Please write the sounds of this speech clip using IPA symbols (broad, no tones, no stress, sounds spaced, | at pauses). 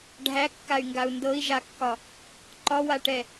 ɖʱ æ kː a y̯ ŋ ɡ a u̯ n d ɤ i̯ ʒ a kː ɒ | ǃ ɒ w a ʈ ɛ